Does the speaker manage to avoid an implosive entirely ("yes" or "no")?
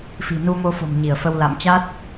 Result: yes